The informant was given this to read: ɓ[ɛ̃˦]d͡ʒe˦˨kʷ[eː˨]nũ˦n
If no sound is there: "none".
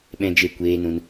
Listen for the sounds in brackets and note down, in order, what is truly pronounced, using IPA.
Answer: ɛ̃˦, eː˦

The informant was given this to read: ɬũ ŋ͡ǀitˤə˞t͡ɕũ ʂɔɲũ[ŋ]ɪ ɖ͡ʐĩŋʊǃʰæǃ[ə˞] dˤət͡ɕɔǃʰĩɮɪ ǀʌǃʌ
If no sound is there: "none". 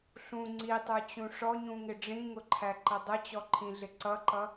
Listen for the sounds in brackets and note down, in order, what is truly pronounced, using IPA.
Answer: ŋ, ʌ

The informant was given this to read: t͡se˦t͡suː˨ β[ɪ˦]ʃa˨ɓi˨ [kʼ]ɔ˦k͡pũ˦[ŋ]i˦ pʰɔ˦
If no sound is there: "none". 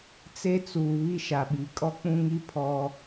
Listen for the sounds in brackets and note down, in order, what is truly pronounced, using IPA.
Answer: i˦, kʼ, ŋ

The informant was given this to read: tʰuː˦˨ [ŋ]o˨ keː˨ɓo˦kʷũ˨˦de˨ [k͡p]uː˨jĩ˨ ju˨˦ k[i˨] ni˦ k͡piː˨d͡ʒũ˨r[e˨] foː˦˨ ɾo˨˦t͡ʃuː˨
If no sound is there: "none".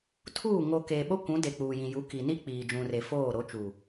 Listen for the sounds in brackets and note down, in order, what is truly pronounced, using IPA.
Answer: ŋ, k͡p, i˨, e˨

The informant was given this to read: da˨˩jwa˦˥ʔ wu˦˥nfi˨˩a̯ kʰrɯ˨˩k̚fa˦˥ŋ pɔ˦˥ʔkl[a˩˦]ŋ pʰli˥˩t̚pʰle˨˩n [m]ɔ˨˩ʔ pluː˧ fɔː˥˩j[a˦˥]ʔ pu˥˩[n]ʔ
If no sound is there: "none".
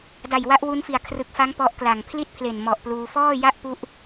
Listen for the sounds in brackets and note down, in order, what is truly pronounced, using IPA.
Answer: a˨˩, m, a˥˩, none

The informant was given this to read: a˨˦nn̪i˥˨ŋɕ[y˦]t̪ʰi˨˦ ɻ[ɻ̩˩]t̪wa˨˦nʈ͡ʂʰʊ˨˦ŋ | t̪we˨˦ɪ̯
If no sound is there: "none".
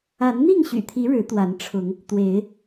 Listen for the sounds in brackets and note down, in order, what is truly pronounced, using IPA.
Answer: y̰˨˩, ɻ̩˨˦

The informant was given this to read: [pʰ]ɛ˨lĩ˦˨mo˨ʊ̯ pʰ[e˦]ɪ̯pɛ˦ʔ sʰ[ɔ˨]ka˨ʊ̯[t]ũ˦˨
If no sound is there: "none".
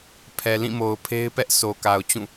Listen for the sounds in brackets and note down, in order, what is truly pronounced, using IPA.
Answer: pʰ, e˦, o˨, t͡ɕ

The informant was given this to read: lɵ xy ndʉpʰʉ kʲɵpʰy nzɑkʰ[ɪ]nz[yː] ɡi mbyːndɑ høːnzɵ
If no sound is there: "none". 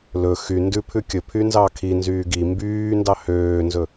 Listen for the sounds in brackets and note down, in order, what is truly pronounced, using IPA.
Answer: i, yː

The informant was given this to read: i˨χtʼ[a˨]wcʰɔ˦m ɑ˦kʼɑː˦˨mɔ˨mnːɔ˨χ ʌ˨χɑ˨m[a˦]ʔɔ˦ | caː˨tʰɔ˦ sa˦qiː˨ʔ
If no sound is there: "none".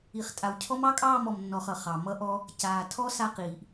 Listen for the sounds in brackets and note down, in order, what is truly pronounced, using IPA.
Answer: a˨, ʌ˦

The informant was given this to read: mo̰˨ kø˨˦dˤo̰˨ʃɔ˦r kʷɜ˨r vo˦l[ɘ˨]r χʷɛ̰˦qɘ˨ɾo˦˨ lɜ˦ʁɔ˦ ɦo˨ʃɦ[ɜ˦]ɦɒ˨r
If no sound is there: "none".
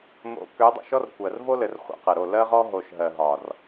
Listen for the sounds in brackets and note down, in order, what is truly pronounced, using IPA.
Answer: ɘ˨, ɜ˨

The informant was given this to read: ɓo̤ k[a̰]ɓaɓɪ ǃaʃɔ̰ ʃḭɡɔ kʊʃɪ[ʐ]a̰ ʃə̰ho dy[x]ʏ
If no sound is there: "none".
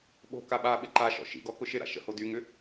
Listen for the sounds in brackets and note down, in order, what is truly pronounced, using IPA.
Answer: a, ɾ, ŋ

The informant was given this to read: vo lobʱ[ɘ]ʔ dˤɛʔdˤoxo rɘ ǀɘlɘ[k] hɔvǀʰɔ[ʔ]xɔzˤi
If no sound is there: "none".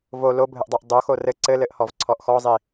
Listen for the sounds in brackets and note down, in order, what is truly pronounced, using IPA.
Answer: ɘ, ʔ, ʔ

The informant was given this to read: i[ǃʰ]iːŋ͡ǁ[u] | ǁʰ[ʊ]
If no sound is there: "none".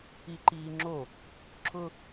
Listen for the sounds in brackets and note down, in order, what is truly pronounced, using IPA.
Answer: ǃ, o, ʊ

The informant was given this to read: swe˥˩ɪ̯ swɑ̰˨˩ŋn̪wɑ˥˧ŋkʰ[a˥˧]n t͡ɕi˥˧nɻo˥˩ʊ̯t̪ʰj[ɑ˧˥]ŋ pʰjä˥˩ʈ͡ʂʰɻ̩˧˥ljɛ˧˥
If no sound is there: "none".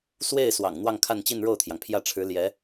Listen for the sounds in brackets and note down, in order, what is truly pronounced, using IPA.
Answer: a˥˧, ɑ˩

